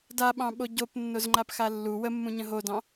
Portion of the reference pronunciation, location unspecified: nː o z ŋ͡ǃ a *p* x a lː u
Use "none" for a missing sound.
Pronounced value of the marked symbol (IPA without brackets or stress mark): p